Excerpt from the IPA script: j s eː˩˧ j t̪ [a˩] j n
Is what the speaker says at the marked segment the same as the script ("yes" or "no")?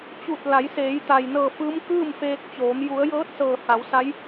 yes